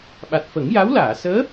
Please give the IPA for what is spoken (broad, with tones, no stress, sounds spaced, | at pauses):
ɓ a˨˩ t̚ f ə˨˩˦ ŋ j a˧˥ w l aː˨˩˨ s əː˧˥